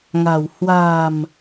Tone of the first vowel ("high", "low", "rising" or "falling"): low